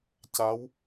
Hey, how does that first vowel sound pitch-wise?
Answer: rising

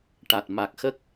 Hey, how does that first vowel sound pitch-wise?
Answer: low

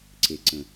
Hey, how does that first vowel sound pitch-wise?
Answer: low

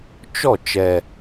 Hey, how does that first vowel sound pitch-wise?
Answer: falling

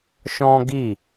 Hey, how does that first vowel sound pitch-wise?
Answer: high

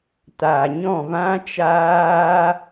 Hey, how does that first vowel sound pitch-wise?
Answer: low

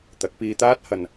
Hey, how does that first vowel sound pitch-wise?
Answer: rising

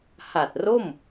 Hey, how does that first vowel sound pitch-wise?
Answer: low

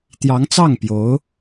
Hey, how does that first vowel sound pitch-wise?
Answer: rising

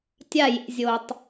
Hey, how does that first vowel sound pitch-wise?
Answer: falling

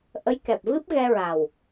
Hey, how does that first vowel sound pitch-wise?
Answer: rising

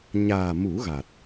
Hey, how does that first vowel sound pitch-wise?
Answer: low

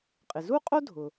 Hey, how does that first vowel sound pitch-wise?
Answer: low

